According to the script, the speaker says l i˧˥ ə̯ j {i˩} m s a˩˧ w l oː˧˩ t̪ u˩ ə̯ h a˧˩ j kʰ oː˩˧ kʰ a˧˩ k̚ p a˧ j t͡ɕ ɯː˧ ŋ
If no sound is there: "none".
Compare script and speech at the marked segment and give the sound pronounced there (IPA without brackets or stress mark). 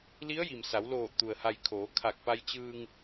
i˩